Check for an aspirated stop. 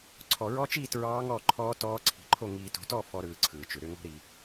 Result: present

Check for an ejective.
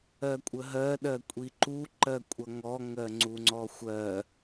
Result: present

